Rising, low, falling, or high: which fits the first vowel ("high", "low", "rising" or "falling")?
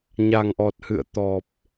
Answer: low